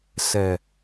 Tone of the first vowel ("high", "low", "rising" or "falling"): low